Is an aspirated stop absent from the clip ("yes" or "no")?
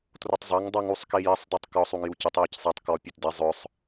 yes